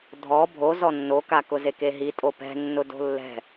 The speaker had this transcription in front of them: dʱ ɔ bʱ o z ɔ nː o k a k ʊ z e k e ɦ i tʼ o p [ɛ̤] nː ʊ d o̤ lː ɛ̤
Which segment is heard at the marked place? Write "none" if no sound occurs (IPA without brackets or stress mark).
ɛ̤